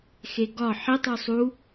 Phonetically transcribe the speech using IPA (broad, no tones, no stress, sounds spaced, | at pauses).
x e ɡ ɒ ħ i tˤ u sˤ u